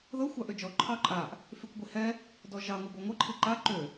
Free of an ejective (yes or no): no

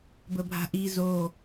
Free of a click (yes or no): yes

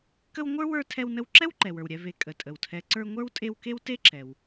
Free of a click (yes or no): no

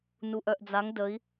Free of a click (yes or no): yes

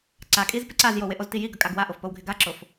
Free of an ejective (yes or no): no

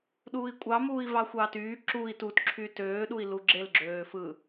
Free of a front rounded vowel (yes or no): no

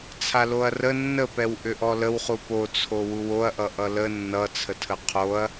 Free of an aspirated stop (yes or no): no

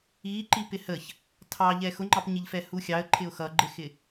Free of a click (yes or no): no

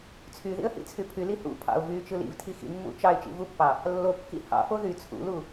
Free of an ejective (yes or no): yes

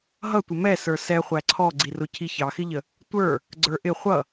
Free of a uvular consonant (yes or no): no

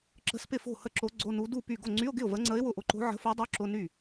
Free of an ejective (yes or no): yes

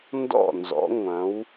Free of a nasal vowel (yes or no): no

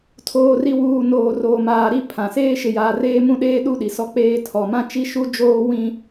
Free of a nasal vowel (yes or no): no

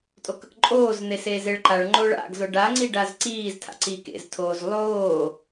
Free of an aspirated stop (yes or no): no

